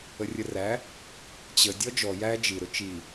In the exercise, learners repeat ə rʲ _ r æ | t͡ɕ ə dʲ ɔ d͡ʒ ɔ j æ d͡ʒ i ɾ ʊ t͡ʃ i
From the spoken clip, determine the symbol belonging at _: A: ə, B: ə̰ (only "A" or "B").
A